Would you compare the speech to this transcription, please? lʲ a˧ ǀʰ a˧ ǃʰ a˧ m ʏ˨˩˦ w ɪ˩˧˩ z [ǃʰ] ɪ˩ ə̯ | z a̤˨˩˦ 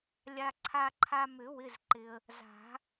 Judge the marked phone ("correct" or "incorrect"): incorrect